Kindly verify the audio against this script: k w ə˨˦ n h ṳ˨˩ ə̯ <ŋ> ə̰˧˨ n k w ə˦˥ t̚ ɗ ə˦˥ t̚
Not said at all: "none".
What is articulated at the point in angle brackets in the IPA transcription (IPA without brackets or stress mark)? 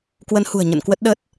ɲ